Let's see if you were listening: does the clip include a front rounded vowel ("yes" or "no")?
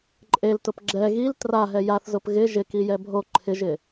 no